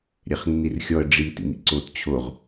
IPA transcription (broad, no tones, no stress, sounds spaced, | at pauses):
ɾʲ ɛ χ nː i r xʲ ɔ ə̯ ɖ͡ʐ i t ḭ m ḭ ǀ o t t͡ɕʰ o ʁ